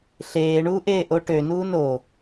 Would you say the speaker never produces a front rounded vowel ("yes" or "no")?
no